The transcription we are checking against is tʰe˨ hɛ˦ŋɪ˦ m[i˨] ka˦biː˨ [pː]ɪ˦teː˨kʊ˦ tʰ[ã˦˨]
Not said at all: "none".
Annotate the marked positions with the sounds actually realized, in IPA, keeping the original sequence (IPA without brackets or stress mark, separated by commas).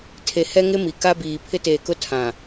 i˨, pʰ, ã˨